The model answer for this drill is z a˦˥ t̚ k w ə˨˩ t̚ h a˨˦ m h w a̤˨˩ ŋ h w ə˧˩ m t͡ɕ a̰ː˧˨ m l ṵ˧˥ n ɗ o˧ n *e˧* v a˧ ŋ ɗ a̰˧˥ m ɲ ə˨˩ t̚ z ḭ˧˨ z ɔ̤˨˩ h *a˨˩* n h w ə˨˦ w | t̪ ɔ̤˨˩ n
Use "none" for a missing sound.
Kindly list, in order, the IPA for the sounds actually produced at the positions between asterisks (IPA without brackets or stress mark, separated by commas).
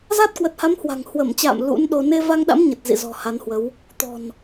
e˧, a˨˦